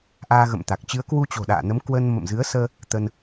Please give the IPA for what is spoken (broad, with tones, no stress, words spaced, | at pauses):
ʔaː˧ɣə̰˧˨mt̪a˨˩k̚ t͡ɕɨ˨˦ə̯kwu˧t͡ɕo̤˨˩ ɗa̰ː˧˨nə˨˦mkwə˧n mə̰˧˨mzɨ˨˦ə̯səː˧ | t̪ə˧n